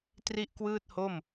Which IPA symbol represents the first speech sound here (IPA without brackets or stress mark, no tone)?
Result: t